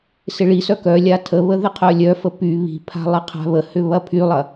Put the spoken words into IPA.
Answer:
s ɪ ɭ i s œ k œ lʲ a tʰ ə β ə ð ɪ qʰ œ lʲ œ f ə p y β i̤ pʰ a̤ lˠ ɪ qʰ a̤ β ə h ʏ β ɐ pʰ y lˠ ɐ

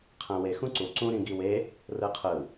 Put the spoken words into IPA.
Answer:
qʰ æ̃ w e x ũ ǀ u ǀ ũ ɾ ĩ ɡ i w e | r ɯ qʰ ɯ

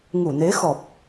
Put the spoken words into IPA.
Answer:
ŋ u˧˩ n e˨˦ x ɔ˨˩ p̚

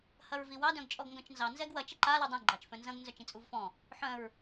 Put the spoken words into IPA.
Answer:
h ɐ ɹ v i w ɑ d œ̃ ɡ t͡ʃʼ ɔ ɡ ŋ ɡ œ̃ t͡ʃ n z ɑ n z ɛ ɡ w ɐ t͡ʃ ɘ ǃ a l u dˤ ĩ ɡ͡ǃ ɑ t͡ʃ f œ̃ n z ɐ̃ ɡ n z œ t͡ʃ ĩ t͡sʼ u v f ɔ̃ | ħ œ̃ ɹ

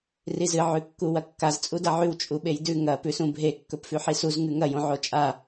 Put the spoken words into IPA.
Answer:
r i z ɨ ʕ ʉ kː u w ɐ kː a z t͡sʼ u d ɐ ʕ ʉ w t͡ʃʼ u ɓ e j d ʉ ŋ ɐ p ʉ s ũ bʱ e kː ɵ p f ʉ ħ i s u z ŋ ʉ ŋ ɐ j õ ʕ o t͡ʃʼ a

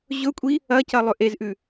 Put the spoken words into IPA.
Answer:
ʑ ɵ kʷʼ i | ɐ c ɐ lˠ ɵ ʔ e z ʔ ʉ

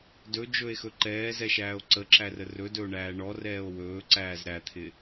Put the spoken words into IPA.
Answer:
d ɵ d͡ʒ ɵ e̯ x ɵ ǃ ɛː z ɛ ʃ æː o̯ ǀ ə ǁ æ r ə r ɵ d ɵ o̯ ɳ æː ɳ ɔ r ɛː o̯ w ɵː ǀ æː z ɾ æ t̪ʰ ɪ

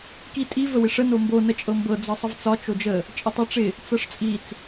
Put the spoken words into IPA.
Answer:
k i tʼ i v ə w ɪ ʂ ə n o m b o n ə t͡ʃʼ ɤ m b ɤ d͡z ɤ sˤ ə v t͡s ɒ t͡ʃ o d͡ʒ ə | t͡ʃʼ ə tˤ ɤ ʈ͡ʂ ɪ | t͡s ɤ ʂ t͡sʼ i t͡s

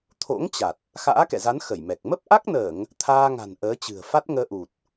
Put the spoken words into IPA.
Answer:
t̪ʰ o̰˧˥ ŋ t͡ɕ a˨˩ t̚ | x a̰ː˧˥ k ɛ̰˧˨ z a˨˦ n x ə˧˩ j m ɛ˨˩ k̚ m ə˦˥ p̚ ʔ a˦˥ k̚ n əː˧˩˨ ŋ | t̪ʰ aː˧ ŋ a̤˨˩ n ʔ əː˨˦ t͡ɕ ɨ̤˨˩ ə̯ f a˦˥ t̚ ŋ əː˧ ʔ u˨˩ t̚

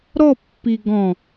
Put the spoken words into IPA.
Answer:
ɾ ɔ pː i ɡ ɔ̃

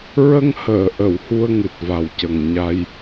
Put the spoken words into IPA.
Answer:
ɹ ə˧ ŋ h əː˨˩˨ ʔ ə˨˩˨ w h u˧ ə̯ ŋ ɨ˨˩ t̚ v a˨˩ w c ə˨˩ ŋ ɲ a˧ j

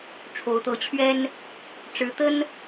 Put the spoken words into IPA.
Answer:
ʈ͡ʂʰ o˨˦ ʊ̯ t̪ ɤ˨˦ t͡ɕʰ ɥ ɛ˦ n | ʈ͡ʂ ɻ̩˨˦ t̪ ə˦ n

